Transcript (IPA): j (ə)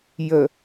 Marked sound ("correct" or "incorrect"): correct